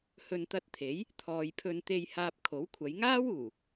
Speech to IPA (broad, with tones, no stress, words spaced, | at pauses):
hɵ˨nt̪ɐ˧t̚t̪ʰe˨˥j | t̪ʰɔː˨jpʰɵ˧n t̪e˨j haː˧p̚kʰo˨˥wkʷʰɐ˨˧j ŋaː˥wuː˨˩